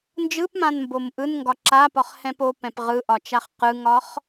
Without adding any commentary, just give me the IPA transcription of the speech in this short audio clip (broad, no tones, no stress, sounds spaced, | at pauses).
n d͡ʒ ɯ p m ã n m b o m ʔ ɯ n ŋ ɡ ɒ ǁ a p ɒ χ h ɛ̃ p o p ɛ̃ p ʁ ɯ ʔ ɒ t͡ʃ a χ q ɯ ŋ ɒ χ